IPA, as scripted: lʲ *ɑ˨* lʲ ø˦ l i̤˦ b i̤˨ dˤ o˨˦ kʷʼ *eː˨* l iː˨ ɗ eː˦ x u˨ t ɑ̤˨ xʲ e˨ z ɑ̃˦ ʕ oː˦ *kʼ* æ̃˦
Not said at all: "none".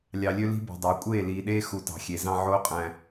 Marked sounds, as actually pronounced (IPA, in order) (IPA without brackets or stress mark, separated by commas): ɑ˨, eː˦˨, qʼ